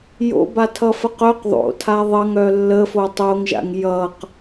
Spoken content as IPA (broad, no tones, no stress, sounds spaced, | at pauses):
j o̰ b a tʰ ʌ f ə q œ q ðˤ o̰ tʰ a ðˤ ʌ ŋ œ lː ə f o tˤ o ŋ ʒ a̰ ŋ j ʌ q